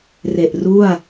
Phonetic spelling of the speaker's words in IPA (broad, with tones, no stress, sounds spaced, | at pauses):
r e˨˩ ʔ r u˥˩ a̯